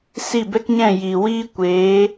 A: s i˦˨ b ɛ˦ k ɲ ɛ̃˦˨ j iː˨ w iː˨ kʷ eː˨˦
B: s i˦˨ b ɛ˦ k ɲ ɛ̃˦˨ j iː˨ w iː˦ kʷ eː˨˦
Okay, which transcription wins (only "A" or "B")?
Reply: B